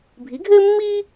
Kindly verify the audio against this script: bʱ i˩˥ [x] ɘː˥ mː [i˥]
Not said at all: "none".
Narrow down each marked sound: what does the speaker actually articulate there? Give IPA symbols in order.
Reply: ɡʱ, iː˥

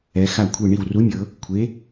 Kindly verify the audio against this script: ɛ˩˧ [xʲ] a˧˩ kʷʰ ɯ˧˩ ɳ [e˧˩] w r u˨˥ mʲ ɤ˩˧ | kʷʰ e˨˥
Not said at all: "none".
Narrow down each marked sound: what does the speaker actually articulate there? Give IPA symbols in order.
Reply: x, i˧˩

